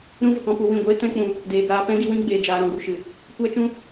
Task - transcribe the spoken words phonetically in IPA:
ɾ ũ˦ v ə˨ k ɔ̃˦ p u˧ w ĩ˦˨ ɡʷ eː˦ t ɛ̃˦ k͡p ũ˧ | d eː˨ ɡ aː˧ p ɛ̃˦ ɡ i˧ w ĩ˦ ɡ͡b eː˧ d͡ʒ aː˧ ɾ ɔ̃˨ ɡ u˨ ʃ ɨ˨ | kʷ a˦ t͡ʃ ũ˦

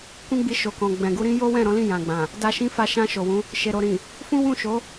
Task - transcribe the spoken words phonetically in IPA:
k ũ˦ ɡ͡b i˧ ʃ o˨ k ɔ̃˨ ɡ͡b ɛ̃˨ ɡ u˧ ɾ ĩ˦ j o˦ w ɛ̃˦˨ ɾ ɔ̃˨˦ l ĩ˦˨ j ã˨ ɡ͡b ã˨ | d a˧ ʃ ĩ˦ f a˦˨ ʃ ã˧ ʃ o˨ w ũ˨˦ | ʃ e˨ ɾ o˨ ɾ ĩ˨ | f ũ˦ w ũ˦˨ ʃ o˨˦

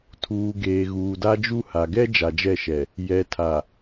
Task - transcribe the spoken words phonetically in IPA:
tʰ uː˨ ɡ eː˨ ɣ uː˨ d a˦ d͡ʒ u˦ h a˨ ɡ ɛ˦ d͡ʒ a˨ d͡ʒ ɛ˦˨ ʃ ɛ˨ | j ɛ˨ tʰ a˨

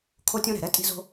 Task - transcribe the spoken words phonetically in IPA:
kʰ o˥ tʲ õ˥ ɾ ɛ̤˩ ɾ ɛ˥ tʼ i̤˥ z o̤˥

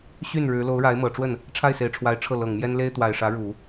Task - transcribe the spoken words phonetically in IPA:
ɕ y˥˩ n ɻ ɻ̩˧˥ l o˧˥ ʊ̯ ɻ a˧˥ ɪ̯ m ɤ˨˩ ʈ͡ʂ w ə˥˩ n | ʈ͡ʂʰ a˥˩ ɪ̯ s e˨˩ ɪ̯ ʈ͡ʂʰ w a˧˥ ɪ̯ ʈ͡ʂʰ ɤ˥˩ l ɤ˨˩ ŋ m j ɛ˥ n l e˥ ɪ̯ t̪ w a˨˩ ɪ̯ ʂ ä˧˥ ɻ u˨˩˦

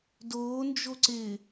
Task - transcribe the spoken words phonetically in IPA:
d oː n d͡ʒ o ǀ ɪː

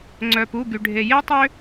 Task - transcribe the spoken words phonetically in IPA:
ŋ͡ǀ œ˩ p u˩˧˩ ɡ y˩ ɖʱ e˩ j e˦ tˤ ø˦

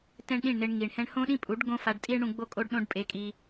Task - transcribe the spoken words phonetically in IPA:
t ɛ̃˦ ɳ ɗ ĩ˦˨ ɳ n ɪ˧ ɳ ŋ i˨ ɳ h ɛ̃˦ ɳ h õ˦ ɗ ĩ˦ pʼ u˨˦ ɖ ɡ õ˦ f a˧ ɖ tʼ i˦ ɳ ɽ ũ˧ ɡ͡b o˦ kʼ o˦ ɖ ɗ õ˦ ɖ pʼ e˧ kʼ i˧

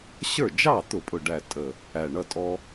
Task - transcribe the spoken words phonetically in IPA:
ɕ ə˞˥˩ d͡ʒ ɑ˥˩ t̪ ʊ˧˩˧ pʼ ʊ˨˩ ɖ æ˨˩ tʼ ə˨˩ | æ˨˩ ɳ ʌ˥˩ tʼ ɔ˦

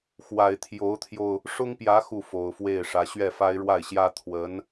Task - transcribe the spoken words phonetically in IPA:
x w a˨˩ ɪ̯ t̪ʰ j o˧˥ ʊ̯ t̪ʰ j o˧ ʊ̯ | ʂ ʊ˥ ŋ p j ä˧˥ x u˥˩ f o˨˩ ʊ̯ f w e˥˩ ɪ̯ ʂ ä˧˥ ɕ ɥ ɛ˥˩ f a˥ ɪ̯ ɻ w a˥˩ ɪ̯ ɕ j ä˥ t̪ʰ w ə˧˥ n

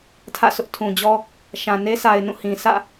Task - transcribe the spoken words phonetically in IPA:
tʰ ä̰˦˨ s ʊ˦ ʔ tʰ ũ˨ d͡ʑ ɔ˦ | ʃ ã˨ n e˦ sʰ a˨ ɪ̯ n ũ˦˨ h ĩ˨ sʰ ä̰˦˨

